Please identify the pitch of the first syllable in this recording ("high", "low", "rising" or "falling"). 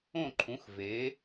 falling